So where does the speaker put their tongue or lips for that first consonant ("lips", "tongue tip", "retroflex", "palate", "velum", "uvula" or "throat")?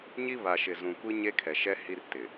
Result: palate